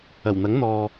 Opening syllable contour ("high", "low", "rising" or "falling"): low